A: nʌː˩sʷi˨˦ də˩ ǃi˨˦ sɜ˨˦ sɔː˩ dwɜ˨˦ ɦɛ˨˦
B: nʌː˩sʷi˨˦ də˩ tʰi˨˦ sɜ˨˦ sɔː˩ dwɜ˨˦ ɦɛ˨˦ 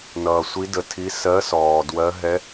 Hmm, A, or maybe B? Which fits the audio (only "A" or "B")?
B